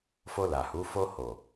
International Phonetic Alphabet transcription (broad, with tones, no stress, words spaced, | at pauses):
fo˧la˨hu˨˦ fo˧ho˨